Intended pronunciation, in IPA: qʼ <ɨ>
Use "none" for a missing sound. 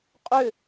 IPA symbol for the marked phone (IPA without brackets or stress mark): ʏ